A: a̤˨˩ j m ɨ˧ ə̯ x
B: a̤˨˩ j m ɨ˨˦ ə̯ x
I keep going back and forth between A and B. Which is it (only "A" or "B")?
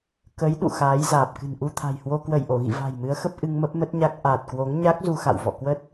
B